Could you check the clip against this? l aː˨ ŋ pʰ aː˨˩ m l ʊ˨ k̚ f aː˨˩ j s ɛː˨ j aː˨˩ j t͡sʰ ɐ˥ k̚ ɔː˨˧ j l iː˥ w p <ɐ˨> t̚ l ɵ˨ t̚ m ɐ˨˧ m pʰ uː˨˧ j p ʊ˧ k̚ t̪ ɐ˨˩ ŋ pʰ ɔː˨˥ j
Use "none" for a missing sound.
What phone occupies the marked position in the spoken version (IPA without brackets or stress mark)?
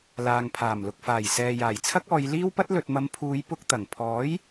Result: ɐ˥